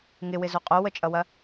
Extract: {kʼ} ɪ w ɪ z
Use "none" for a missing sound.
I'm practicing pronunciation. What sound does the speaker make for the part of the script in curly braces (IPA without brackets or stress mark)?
ŋ